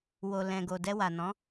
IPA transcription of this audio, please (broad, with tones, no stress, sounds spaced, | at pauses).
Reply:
w o˨ l ɛ̃˨ ɡ o˨ d ɛ˧ w a˨ n ɔ̃˨˦